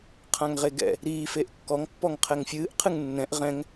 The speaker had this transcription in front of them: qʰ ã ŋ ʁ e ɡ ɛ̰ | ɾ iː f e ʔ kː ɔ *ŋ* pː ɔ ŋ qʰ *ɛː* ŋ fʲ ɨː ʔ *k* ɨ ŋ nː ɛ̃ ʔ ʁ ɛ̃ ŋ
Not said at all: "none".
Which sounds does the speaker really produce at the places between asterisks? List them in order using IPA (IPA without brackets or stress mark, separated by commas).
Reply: ŋ, ɛ, qʰ